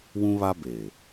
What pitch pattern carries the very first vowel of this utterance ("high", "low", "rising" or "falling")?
high